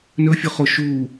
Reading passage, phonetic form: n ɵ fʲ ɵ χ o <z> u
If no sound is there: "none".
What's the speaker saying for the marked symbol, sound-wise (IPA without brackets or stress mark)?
ʃ